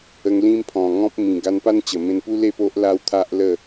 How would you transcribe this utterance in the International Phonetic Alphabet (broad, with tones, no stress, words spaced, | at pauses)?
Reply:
ə˧ŋ lĩ˦mpʰɔ̃˨˩ŋɔ̃˦p̚mĩ˨˩ ɡa˧npa˦n t͡ɕə˨˩mẽ˧npu˦ le˥˧po˦ʔ la˧w t̪ʰa˦ʔlə˥˧